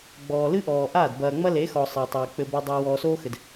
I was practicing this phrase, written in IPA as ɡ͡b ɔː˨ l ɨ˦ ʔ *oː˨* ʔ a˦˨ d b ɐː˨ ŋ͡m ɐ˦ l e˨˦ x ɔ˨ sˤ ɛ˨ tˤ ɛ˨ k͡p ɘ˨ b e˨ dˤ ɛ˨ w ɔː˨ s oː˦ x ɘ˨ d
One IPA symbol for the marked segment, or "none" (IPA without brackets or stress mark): ɔː˨